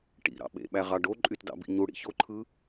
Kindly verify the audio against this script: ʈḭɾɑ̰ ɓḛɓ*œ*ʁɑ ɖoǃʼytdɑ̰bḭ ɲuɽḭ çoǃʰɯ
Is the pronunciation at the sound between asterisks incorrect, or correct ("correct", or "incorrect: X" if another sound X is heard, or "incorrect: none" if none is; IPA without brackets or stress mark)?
incorrect: æ